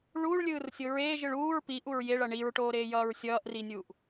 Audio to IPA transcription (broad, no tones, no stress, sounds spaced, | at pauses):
ɭ uː ɭ lʲ ɯː r sʲ o ɹ eː ʒ ɯ ɭ uː ɹ p i ʔ u ɹ j e ɭ ʌ ɳ i ɹ ʈ oː ɾ eː j ʌː ɹ sʲ ʌː ʔ r i nʲ uː ʔ